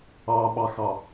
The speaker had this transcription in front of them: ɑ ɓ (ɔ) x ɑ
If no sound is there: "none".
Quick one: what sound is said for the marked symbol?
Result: ɑ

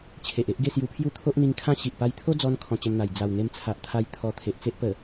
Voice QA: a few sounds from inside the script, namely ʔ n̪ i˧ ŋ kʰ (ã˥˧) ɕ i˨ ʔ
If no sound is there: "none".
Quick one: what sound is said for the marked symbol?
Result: ã˦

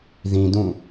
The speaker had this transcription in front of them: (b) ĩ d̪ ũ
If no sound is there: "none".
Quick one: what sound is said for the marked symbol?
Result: ð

